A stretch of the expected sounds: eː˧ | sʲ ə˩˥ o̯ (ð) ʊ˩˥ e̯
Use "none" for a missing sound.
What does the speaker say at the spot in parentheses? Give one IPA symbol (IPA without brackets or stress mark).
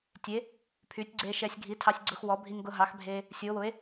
w